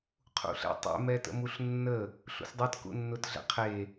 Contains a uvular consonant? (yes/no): yes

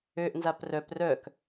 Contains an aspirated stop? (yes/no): no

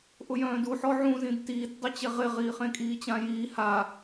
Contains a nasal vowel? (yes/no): yes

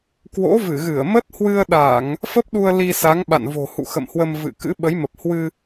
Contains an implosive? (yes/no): yes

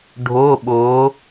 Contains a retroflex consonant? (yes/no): yes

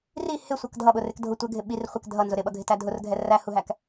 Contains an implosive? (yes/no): yes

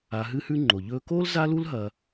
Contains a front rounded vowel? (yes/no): no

